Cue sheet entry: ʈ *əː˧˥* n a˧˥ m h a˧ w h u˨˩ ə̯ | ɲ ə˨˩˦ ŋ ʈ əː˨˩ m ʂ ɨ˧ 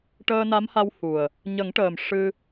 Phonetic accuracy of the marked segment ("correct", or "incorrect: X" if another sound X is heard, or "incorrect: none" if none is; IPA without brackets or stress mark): incorrect: əː˧